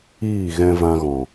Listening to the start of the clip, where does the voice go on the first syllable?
falling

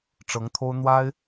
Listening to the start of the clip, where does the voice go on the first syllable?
rising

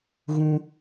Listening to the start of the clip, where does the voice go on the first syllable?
high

